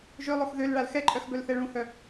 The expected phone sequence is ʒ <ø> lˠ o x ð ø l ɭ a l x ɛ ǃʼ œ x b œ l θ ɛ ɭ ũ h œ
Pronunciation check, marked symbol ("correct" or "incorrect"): correct